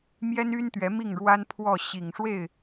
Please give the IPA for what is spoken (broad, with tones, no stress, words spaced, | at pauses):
mjɛ˥ny˥nt̪ɥɛ˧˥ mi˥˩ŋɻwa˥npʰwɔ˥˩ ɕi˨˩ŋʂwe˥˩ɪ̯